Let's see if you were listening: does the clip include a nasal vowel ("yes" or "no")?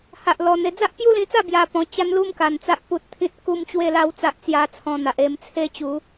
yes